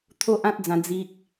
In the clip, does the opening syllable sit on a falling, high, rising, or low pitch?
high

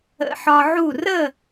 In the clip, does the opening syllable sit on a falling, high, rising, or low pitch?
low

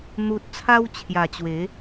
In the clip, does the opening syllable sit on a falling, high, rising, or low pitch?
low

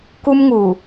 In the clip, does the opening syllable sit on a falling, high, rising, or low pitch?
high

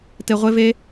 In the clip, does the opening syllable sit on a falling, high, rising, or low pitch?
low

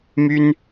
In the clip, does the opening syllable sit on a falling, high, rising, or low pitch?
high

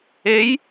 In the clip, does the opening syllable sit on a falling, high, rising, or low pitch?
rising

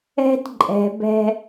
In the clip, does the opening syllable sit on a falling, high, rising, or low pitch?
high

